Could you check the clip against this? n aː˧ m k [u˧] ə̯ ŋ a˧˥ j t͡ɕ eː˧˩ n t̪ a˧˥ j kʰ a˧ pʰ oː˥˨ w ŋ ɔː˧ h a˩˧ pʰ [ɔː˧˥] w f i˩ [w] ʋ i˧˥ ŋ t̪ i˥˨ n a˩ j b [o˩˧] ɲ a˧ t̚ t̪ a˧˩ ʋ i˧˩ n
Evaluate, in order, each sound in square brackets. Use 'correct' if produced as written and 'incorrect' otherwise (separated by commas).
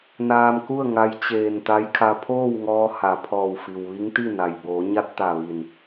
incorrect, incorrect, correct, incorrect